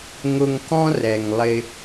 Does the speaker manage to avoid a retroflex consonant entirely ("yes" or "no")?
yes